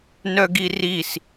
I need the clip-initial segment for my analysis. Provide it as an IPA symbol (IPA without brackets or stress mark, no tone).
n